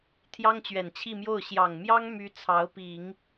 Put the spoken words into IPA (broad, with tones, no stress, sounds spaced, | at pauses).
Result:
t̪ʰ j ɑ˥ ŋ t͡ɕ ɥ ɛ˨˩ n t͡ɕʰ i˥˧ m j o˥˩ ʊ̯ ɕ j ɑ˨˩ ŋ m j ɑ˥ ŋ m y˥ t͡sʰ ɑ˧˥ ʊ̯ p i˨˩˦ ŋ